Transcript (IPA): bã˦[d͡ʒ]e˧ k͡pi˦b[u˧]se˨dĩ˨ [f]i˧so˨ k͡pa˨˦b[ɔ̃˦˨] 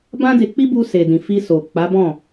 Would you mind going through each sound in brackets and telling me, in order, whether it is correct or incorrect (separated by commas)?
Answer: incorrect, correct, correct, correct